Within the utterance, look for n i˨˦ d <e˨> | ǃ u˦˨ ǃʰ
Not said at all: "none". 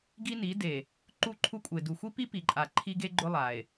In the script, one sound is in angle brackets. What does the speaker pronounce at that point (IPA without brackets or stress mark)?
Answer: e˨